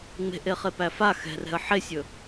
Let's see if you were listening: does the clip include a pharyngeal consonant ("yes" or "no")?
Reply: yes